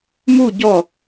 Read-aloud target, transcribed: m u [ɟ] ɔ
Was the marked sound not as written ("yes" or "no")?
no